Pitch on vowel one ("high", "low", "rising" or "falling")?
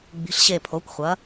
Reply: rising